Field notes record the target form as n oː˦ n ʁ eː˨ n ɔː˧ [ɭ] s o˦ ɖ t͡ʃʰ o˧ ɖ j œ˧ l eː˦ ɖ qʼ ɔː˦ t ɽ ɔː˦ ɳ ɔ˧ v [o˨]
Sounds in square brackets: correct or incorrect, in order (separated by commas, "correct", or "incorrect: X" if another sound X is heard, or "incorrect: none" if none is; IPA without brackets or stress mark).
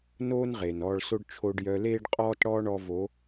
correct, incorrect: o˨˦